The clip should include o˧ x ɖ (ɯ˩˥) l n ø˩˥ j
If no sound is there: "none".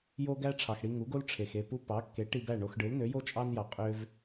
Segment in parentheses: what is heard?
ɯ˩˥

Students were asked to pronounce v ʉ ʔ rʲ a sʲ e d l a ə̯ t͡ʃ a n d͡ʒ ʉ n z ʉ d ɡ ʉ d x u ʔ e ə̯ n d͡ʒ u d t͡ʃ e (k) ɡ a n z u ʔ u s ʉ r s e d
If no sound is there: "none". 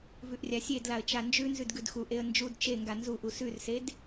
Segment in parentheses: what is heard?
ŋ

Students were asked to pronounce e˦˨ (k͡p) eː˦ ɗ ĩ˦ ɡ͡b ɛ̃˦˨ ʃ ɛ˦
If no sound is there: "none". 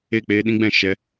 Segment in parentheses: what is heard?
k͡p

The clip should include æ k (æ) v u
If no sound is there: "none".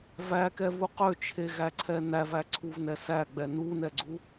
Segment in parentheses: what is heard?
ɛ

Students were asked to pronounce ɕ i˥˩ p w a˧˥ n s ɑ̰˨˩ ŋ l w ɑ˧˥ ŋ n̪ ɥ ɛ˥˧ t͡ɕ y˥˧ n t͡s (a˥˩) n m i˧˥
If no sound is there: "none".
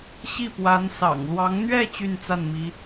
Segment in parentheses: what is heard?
a˥˩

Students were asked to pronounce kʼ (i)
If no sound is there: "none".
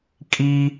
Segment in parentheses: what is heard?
i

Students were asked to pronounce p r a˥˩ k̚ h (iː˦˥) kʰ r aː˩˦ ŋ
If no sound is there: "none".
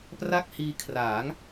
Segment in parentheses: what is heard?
iː˧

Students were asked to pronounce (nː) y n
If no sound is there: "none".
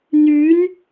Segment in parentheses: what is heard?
n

